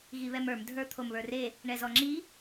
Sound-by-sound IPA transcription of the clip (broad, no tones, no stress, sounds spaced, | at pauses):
ɣ i β ɛ m ə˞ m dʱ ə˞ t̪ʰ o m β ə˞ r e | ɳ ɛ z ɔ ŋ͡ǁ i